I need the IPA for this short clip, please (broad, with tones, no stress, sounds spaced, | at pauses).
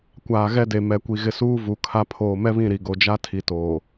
kʷ aː˨ ɣ ɛ˦ d e˨ m ɛ˨ kʷ i˨ ɣ ɪ˨ s uː˦ v u˨ kʰ a˦ pʰ oː˨ m ɛ˦ β ĩ˦˨ ɾ i˨ ɡ o˨ d͡ʒ a˦ tʰ i˨ t oː˨